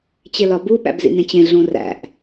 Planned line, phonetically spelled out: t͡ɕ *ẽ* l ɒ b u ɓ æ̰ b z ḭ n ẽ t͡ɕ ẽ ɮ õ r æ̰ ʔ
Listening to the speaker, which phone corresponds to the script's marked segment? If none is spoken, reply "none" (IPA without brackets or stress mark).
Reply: e